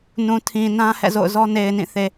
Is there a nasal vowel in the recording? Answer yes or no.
yes